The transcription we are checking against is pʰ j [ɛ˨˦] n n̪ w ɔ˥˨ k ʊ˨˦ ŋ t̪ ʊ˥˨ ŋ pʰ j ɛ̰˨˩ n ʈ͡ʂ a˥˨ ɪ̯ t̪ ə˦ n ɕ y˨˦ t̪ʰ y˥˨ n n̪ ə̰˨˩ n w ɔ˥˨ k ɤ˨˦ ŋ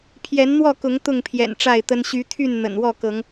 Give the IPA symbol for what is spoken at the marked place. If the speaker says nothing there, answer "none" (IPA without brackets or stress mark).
ɛ˨˦